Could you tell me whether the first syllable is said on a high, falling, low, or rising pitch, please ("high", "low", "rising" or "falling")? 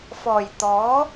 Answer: low